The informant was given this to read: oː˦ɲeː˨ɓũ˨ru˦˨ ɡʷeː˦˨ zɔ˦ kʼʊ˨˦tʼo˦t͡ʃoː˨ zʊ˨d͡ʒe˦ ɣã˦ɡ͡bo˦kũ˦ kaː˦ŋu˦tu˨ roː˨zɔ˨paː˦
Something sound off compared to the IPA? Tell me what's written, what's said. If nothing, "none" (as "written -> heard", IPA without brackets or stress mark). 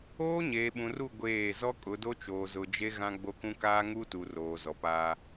tʼ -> d